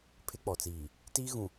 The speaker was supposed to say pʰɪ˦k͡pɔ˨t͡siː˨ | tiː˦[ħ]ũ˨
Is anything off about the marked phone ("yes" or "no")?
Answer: yes